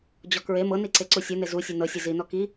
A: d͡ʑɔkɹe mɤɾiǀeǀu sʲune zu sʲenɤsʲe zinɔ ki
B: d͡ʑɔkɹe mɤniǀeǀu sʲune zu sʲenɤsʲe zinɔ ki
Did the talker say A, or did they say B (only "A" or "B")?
B